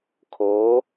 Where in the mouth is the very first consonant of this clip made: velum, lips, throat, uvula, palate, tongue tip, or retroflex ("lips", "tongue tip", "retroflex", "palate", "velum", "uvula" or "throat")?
velum